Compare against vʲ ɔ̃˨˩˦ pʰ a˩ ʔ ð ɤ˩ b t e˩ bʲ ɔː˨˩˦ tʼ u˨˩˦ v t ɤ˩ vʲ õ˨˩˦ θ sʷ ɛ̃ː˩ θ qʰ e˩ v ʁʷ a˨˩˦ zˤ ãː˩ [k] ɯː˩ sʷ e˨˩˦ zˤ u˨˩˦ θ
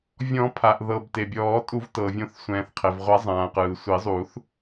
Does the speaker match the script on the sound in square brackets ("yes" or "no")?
no